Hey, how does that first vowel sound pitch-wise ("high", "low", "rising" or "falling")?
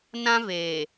high